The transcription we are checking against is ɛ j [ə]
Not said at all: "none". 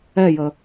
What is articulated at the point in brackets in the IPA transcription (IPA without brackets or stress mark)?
ə